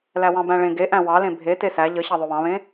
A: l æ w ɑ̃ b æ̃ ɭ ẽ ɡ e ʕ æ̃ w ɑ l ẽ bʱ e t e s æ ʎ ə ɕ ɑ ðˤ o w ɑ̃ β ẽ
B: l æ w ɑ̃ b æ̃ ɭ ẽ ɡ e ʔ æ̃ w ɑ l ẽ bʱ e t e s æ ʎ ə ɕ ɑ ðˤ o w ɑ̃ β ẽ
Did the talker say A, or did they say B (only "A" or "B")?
B